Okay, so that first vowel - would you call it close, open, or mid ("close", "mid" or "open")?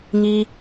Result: close